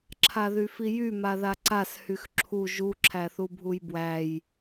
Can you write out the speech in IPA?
ǁʰaðyfijy maðaǀas hyxǁʰu ʒu ǁʰæθubʱujbwæj

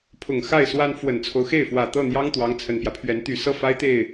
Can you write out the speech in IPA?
pʰʊ˨˩ŋxa˥˩ɪ̯swa˥n fwə˨˩nt͡sʰo˦ʊ̯xe˥˩ɪ̯fwä˨˩ t̪ɤ˥˩n̪jɑ˥ŋ t̪wɑ˧˥ŋt͡sʰə˨˩npjä˦pʰɥɛ˧˥n t̪y˨˩ sɤ˥˩fa˥ɪ̯t̪e˥˩ɪ̯

